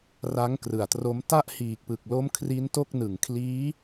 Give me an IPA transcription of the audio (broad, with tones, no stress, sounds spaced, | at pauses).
r a˦˥ ŋ k r ɯ˨˩ a̯ t r o˦˥ m t a˥˩ ʔ h iː˨˩ k̚ p ɯ˨˩ k̚ l o˦˥ m kʰ r i˦˥ n t o˥˩ k̚ n ɯ˨˩ ŋ kʰ l iː˦˥